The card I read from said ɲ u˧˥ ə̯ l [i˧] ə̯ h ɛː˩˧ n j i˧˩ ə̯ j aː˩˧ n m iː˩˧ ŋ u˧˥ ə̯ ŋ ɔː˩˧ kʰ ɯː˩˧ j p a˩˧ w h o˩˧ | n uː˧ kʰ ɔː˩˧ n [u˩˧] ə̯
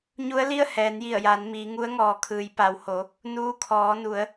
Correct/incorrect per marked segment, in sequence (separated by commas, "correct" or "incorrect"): incorrect, correct